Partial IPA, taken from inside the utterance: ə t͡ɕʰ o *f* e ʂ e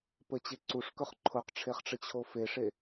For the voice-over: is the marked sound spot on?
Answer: yes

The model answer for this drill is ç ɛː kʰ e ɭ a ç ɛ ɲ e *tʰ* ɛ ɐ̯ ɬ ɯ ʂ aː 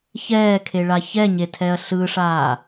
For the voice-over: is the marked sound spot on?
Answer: yes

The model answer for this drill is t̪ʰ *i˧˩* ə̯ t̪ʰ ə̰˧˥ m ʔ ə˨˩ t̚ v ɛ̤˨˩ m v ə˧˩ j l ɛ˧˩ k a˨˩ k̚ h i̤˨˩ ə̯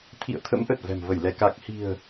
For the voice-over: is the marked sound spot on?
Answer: no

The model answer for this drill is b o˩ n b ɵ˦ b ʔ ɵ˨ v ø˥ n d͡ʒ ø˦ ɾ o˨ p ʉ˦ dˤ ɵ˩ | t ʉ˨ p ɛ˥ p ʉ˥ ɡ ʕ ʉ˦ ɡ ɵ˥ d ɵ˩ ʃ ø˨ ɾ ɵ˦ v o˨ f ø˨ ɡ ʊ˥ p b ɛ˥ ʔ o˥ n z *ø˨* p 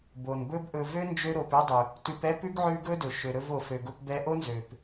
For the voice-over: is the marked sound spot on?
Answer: no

